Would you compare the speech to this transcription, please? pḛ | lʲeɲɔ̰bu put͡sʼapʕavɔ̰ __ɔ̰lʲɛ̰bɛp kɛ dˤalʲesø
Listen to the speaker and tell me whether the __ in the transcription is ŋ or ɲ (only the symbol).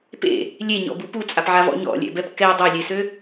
ɲ